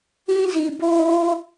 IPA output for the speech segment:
ĩ˦zi˧boː˦

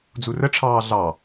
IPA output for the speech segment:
d͡zurəʈ͡ʂʰɑː ɮɑ

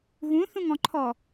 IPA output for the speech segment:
ɣũθũŋɔ̃ǃʰɔ

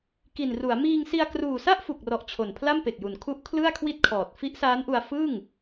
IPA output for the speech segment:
ki˨˩nru˩˦a̯ miː˧ŋsi˧a̯ kruː˨˩sa˥˩ʔ fu˨˩k̚rɔ˨˩ʔ t͡ɕʰo˨˩npʰla˥˩mpe˨˩k̚ju˨˩n kʰu˦˥ʔ kʰlɯ˥˩a̯kʰwi˥˩t̚kʰɔː˨˩t̚ fi˦˥ʔsaː˦˥nʔu˧a̯ fɯ˥˩ŋ

